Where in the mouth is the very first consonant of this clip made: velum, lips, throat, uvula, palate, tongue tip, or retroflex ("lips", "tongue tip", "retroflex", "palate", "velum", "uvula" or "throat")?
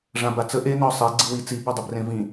retroflex